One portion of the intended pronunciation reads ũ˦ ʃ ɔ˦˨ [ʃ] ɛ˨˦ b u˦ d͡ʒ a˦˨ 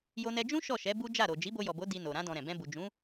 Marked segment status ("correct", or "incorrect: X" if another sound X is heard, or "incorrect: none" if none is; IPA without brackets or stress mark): correct